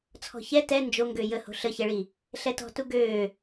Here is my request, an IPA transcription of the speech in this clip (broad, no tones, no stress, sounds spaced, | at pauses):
t͡sʰ ɔ̤ ç ɛ t ɛ n d͡ʒ o ŋ ɡ ø j ə h o̤ ɬ ə ç ɛ ɭ i | ɬ ɛ t ɔ̤ t u ɡ øː